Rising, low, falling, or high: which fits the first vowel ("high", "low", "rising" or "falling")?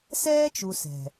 high